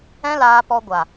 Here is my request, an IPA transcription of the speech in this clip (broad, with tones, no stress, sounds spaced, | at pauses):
ɛ̃˦ l aː˧ p ɔ˧ ɡʷ a˨